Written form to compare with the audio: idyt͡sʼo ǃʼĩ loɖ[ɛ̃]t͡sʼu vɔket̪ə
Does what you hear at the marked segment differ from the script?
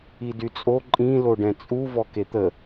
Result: no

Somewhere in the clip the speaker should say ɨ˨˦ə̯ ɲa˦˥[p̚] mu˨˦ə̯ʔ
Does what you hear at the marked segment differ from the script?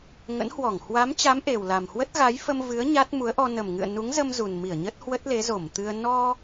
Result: yes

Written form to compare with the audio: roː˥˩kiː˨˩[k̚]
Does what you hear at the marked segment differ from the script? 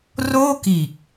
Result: no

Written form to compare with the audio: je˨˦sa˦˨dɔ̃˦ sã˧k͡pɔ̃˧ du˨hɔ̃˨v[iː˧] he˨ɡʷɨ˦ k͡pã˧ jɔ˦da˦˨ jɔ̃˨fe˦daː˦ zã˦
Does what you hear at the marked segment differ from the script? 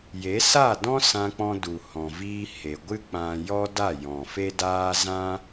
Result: no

